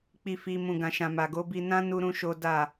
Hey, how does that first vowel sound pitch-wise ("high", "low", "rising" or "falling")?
low